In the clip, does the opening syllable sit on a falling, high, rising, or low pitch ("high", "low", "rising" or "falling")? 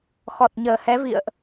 low